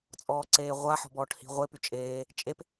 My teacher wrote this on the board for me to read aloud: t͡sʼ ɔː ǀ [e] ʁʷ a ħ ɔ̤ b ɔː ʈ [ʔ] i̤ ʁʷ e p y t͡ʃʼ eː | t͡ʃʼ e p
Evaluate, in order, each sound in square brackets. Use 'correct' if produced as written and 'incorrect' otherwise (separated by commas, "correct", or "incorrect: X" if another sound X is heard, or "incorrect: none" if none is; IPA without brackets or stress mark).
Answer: incorrect: eː, incorrect: h